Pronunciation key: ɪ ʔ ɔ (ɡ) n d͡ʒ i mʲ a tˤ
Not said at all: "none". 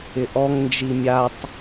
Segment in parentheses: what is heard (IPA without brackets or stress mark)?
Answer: ŋ